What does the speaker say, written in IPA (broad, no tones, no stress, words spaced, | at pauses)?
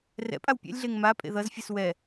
rɛ̰pʼaw pʲɛ̰lʲɮeŋ mapʼḛ ðʌzfʲɯs wɛ